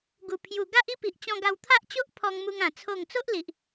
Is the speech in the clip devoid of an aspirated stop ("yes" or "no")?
no